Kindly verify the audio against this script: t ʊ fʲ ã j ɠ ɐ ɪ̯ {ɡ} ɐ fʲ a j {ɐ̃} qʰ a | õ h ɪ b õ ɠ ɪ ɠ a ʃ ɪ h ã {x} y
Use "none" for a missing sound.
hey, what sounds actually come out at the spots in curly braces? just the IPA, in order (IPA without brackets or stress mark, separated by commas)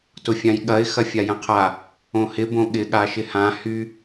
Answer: x, ɐ̃, h